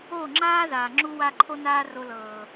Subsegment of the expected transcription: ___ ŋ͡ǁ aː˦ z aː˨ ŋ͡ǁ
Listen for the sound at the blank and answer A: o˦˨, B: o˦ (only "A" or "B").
A